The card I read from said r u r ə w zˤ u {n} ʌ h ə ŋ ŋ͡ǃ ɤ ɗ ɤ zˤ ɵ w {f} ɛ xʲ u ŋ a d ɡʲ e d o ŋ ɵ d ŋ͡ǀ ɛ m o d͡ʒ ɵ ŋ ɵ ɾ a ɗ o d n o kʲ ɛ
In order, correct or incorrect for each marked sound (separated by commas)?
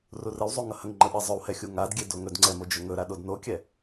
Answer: incorrect, incorrect